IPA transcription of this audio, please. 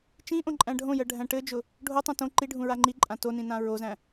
t͡ʃĩ ʔõǃʼæ̃ɖʱõjɜ ɖʱæ̃ʈɘd͡ʒʊ | ɖʱotˤõ tõ ǃiɖʱũ ɹaŋ͡ǃiǃʼã tonĩ nãɹozæ̃

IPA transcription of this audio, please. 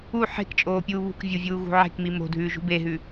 u ħe̤kt͡ʃʼoːpʲuː βṳkvʲuvʲuːɣṳ ʕe̤kmi mo̤dʱʉːʒṳ beɦʉ

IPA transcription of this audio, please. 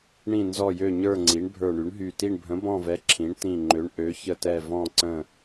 ɳĩ˧˩nzɔ˧˩jø˧˩ɲə˞˧˩ ŋ͡ǀi˩˥ɳbʱə˞˧˩ɳy˩˥ɳɦy˧˩ ti˧˩ɳbʱə̃˩˥bɔ̃˧˩vɛ˩˥ ǁʰĩ˩˥ɳtĩ˧˩ ŋ͡ǃø˩˥ɳʔø˩˥çə˧˩tɛ˧˩ vɔ̃˧˩ǀə̃˧˩

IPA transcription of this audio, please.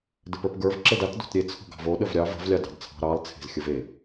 dɘpə˞pɡə˞v ǁɘdat do̤tɾʲe t͡sʰo̤ɡɑ̤vo ɗəvɾʲɑ və̤v lʲɑdɑ̤dt͡sʰɑ̤ ɾɑlˠ t͡sʰe̤zxʲəve

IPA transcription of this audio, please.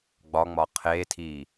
ɡ͡bɒŋ͡mɒ qʰetʰi

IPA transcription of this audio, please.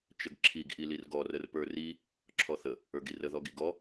t͡ʃəɡǁʰiɡ ʔilirɡɔ rərpə˞ri | ǁʰɔθə | ə˞ɡirə ðɔɡiɡɔ

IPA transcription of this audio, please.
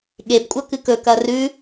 ɠebkʷʼɐ kɨkɵkɐ rʉ

